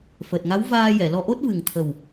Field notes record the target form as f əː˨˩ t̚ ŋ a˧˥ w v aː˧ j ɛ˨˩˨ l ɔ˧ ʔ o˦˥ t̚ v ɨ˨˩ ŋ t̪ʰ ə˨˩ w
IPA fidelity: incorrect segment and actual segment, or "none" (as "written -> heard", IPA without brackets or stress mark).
none